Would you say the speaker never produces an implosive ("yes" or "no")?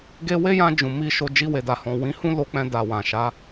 yes